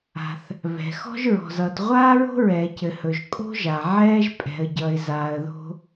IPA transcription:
a̤˩ θ | β ɛ̤˩ x ɔ̤˦ ʒ ɹ ɔ̤˩ z ʌ˩ t ʁʷ aː˦ ɹ o̤˦ ɹ ɛː˩ c ɘ˩ h ɵ˩ ʒ kʼ o̤˦ ʒ a˩ ʕ ɛː˦ ʒ pʼ ɛ̤˩ ə̯ ɟ ʌ˩ ɪ̯ z aː˩ ə̯ ð o̤˦

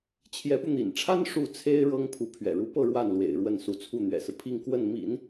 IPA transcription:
t͡ɕʰ j ɛ˧˥ p u˧ n̪ ḭ˨˩ n ʈ͡ʂʰ a˥ n ʂ u˥˩ t͡sʰ e˥ ɪ̯ ɻ ɤ˥ ŋ pʰ u˧˥ pʰ ɥ ɛ̰˨˩ ɻ u˧˥ p ɤ˥˧ ɻ w a˥˩ n l w ḛ˨˩ ɪ̯ ɻ w ə˥˩ n s u˧˥ t͡sʰ u˥˩ n̪ ɥ ɛ̰˨˩ s ɹ̩˦ pʰ i˥˧ ŋ k w ə˥˩ n m ḭ˨˩˦ n

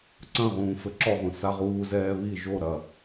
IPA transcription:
ǀ ɐ̃ ʁ ũː f ɘ ǁ ɔ ʁ ũ s a ʁ uː z ɛː β i ʒ o ɾ ɐ

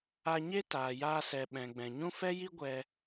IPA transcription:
a˧ ɲ e˦ t aː˨ j aː˧ s ɛ˨ ɓ ɛ̃˨ ɡ͡b ɛ̃˨ ɲ ũ˦ f ɛ˦ j i˦ ɡʷ ɛ˧

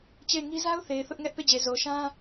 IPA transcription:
t͡ɕ e˦˨ ɪ̯ ŋ i˦ z a˦ ʊ̯ θ e˨ ɪ̯ θ ʊ˦ ʔ ŋ ɛ˦ ʔ p e˦˨ d͡ʑ e˨ z o˨ ʃ ã˦

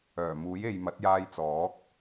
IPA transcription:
œː˨˩ m uː˨˥ j e˨ j m ɐ˨˥ t̚ j aː˧ j t͡s ɔː˨˥ k̚

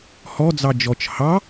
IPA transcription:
h ɔ d͡z ɑ d͡ʒ ɔ t͡ʃ h ɑ

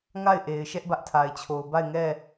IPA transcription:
ŋ a˦˨ ɪ̯ ʔ e˨ ɪ̯ ʃ ɛ˦ ʔ b ä˦ ʔ tʰ a˨ ɪ̯ t͡ɕʰ o˨ ʊ̯ b a˦˨ ɪ̯ ŋ ɛ˦˨

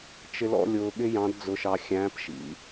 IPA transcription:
t͡ʃ ɪ˧ l ɔ̰˧ lʲ ʊː˧ ɠ ɪ˥ j ɑ̃˧˥ d d͡z ʊ˧ ʃ ɑ˧ xʲ æ̃ː˧˥ p ʃ ḭ˩˧

